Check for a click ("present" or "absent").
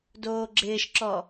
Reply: present